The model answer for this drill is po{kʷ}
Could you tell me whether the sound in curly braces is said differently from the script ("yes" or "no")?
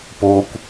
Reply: no